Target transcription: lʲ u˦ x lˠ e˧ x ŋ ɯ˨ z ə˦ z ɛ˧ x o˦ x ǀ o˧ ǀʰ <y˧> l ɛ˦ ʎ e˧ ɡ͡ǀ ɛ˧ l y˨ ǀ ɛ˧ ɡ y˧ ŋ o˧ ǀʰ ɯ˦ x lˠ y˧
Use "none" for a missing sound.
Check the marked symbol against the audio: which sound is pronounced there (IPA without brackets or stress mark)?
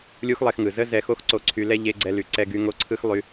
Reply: y˧